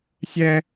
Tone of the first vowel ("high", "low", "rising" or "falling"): high